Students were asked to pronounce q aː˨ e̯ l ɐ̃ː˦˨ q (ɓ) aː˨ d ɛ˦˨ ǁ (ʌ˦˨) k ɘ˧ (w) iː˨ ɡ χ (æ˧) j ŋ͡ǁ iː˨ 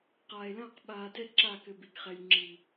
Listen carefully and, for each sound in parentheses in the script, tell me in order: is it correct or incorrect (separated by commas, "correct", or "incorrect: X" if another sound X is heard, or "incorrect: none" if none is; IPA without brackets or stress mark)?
correct, incorrect: a˦˨, incorrect: b, incorrect: ɛ˧